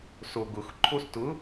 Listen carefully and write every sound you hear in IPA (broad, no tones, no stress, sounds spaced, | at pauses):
s o ɡ ʊ x ǃʰ o s t ʊ